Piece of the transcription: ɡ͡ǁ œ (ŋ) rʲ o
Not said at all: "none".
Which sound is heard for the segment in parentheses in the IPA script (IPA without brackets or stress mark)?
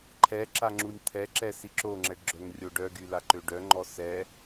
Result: ŋ